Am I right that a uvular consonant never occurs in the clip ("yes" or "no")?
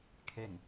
yes